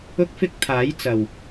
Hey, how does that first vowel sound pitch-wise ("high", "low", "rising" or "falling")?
high